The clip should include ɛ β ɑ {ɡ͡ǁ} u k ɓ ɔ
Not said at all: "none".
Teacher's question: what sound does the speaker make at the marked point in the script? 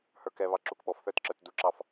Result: ǁ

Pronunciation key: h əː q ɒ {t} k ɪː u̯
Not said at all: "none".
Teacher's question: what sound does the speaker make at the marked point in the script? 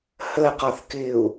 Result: θ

